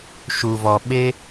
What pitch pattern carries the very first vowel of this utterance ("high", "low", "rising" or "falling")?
low